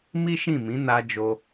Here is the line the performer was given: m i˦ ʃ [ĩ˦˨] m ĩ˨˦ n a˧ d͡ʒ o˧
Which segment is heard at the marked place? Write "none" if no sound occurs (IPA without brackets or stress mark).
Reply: ĩ˦˨